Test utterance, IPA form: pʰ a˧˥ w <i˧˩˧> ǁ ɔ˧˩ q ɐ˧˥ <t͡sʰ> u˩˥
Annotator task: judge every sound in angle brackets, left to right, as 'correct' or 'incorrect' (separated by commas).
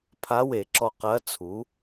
incorrect, correct